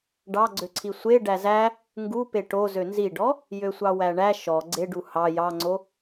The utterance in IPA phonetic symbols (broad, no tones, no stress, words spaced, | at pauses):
ɖɑɡ͡ǀøǀʰi sʷe ɖæzæ | ŋɡupe ʈo zønziɖɔ | jøsʷɑwæɳæ ʃɔ ɡ͡ǀeɖu hɑ jɑŋ͡ǀo